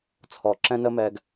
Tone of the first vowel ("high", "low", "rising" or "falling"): low